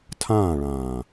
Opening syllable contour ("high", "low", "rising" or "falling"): falling